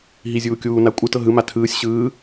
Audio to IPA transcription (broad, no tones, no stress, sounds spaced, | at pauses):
ɦ i zʲ uː kʲ uː n a kʷʼ ɯ t ɤ ɦ ɯ m a tʰ ɯː sʲ ɕ ɯː